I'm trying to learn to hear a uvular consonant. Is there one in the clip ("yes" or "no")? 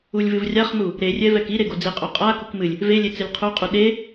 yes